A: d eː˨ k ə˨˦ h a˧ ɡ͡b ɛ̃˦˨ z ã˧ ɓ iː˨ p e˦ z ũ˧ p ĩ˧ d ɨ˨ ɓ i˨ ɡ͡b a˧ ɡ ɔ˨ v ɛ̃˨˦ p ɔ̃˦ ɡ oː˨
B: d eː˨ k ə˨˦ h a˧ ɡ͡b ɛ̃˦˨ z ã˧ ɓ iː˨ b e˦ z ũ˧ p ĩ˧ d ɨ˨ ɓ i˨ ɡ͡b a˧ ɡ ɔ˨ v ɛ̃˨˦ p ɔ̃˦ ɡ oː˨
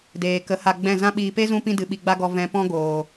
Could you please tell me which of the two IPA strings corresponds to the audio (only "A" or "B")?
A